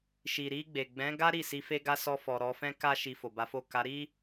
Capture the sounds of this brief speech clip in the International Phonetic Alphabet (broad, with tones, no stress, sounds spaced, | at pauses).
ʃ i˨ ɾ i˧ ɡ͡b e˨ ɡ͡b ɛ̃˨˦ ɡ a˦ ɾ i˦˨ s i˧ f e˦ ɡ a˦ s ɔ˧ f ɔ˨ ɾ ɔ˧ f ɛ̃˦ k a˦ ʃ i˧ f o˨ b a˨˦ f o˦˨ k a˨˦ ɾ i˦